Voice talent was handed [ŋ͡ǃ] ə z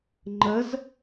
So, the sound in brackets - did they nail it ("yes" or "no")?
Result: yes